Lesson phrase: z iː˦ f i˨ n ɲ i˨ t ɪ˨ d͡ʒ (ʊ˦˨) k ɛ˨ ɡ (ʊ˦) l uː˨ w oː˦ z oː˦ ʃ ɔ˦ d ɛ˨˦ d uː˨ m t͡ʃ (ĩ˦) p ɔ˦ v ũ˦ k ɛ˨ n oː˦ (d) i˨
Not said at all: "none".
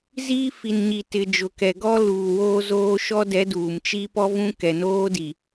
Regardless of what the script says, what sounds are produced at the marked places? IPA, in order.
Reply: ʊ˨, ɔ˦, i˦, d

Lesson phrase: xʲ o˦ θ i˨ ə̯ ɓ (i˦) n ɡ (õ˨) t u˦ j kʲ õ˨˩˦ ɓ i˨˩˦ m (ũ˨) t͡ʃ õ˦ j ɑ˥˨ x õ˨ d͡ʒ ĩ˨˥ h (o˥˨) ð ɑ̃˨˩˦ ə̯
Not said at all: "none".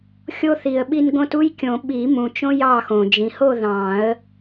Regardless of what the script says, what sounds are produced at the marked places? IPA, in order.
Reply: i˦, õ˦, ũ˨, o˥˨

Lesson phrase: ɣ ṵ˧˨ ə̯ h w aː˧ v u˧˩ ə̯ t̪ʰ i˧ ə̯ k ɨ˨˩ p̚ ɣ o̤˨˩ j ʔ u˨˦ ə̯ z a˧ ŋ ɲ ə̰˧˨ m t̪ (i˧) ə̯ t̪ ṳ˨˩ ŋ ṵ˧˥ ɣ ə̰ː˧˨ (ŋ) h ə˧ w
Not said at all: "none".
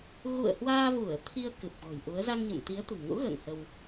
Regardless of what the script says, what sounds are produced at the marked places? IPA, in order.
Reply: i˨˦, ŋ

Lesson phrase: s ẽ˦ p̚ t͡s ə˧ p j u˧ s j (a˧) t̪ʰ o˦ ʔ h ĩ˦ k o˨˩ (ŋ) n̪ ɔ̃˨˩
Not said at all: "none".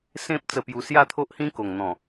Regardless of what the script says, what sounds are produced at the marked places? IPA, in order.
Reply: a˥˧, ŋ

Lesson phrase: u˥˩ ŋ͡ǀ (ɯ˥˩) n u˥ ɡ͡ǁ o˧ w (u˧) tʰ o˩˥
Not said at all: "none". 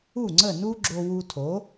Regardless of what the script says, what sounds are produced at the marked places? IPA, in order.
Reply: ə˥˩, u˧

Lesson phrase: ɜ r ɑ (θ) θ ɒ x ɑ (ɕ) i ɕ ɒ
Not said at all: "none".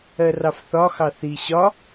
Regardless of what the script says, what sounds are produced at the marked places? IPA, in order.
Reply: f, θ

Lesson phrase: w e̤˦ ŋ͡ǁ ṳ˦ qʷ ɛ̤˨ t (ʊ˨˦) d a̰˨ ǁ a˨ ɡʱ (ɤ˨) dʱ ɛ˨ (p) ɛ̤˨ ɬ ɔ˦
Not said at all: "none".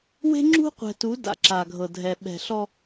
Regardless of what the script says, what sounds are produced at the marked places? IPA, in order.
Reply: u˨˦, ɤ˨, ɓ

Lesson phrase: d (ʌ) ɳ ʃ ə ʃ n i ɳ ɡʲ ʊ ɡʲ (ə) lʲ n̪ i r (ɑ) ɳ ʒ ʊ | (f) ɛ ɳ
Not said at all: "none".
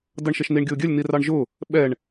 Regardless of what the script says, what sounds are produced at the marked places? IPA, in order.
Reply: ʌ, ə, ɑ, ɓ

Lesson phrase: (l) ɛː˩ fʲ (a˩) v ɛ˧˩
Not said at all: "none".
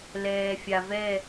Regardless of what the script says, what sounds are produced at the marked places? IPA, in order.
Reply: l, a˩

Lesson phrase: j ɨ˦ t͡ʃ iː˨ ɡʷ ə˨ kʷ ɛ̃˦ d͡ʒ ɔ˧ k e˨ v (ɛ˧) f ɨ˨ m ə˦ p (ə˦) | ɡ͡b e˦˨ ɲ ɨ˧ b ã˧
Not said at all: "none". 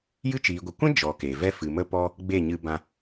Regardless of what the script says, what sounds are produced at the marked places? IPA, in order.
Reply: ɛ˦, ɔ˦

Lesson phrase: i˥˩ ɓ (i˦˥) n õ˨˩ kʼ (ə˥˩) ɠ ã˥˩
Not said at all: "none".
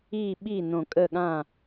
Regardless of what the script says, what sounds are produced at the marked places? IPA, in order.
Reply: i˥˩, ə˥˩

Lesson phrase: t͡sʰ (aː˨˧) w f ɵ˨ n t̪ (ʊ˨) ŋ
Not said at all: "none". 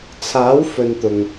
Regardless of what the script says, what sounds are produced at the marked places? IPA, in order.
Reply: aː˨˥, ʊ˨

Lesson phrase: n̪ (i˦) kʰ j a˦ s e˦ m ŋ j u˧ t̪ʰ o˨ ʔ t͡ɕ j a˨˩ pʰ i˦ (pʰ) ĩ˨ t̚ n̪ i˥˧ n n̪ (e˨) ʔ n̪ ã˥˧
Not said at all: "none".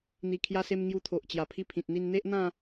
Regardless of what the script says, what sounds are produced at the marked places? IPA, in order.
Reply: i˧, pʰ, e˦

